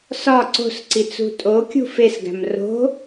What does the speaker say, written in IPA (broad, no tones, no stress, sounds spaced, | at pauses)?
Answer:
s ɒ ǀ o̤ s ǀ i t͡s ṳ tʼ o kʲ ṳ f e s ɡ æ̤ m r o̤